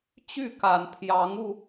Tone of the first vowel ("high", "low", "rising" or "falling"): falling